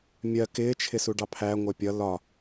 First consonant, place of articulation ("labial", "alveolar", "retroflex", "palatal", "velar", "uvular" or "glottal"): labial